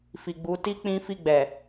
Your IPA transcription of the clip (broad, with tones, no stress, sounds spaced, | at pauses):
f i˨ ɡ͡b u˨˦ t i˦ k͡p ĩ˦ f i˦˨ ɡ͡b ɛ˨